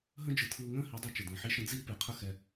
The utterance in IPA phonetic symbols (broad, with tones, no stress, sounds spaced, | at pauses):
ɦ ə̃˦ d͡ʒ ɯ˨ tʰ ɯː˧ ŋ ə̃ː˦ h i˨˦ dˤ ɛ˧ t͡ʃ ə˨ d ə̃ː˨ ħ i˦ ʃ ə̃˦ d͡z iː˦ p e˨ qʰ ə˦ x ɛ˧